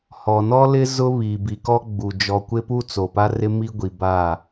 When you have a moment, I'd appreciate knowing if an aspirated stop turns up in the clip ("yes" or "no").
no